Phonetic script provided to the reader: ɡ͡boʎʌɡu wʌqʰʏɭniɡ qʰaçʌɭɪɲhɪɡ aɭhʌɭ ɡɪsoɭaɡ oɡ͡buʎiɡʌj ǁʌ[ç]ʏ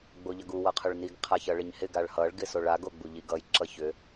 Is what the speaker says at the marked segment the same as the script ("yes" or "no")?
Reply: yes